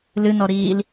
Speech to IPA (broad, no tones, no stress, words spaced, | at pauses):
lɨnɔɾiːl